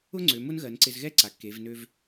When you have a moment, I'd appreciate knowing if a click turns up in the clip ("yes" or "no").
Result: yes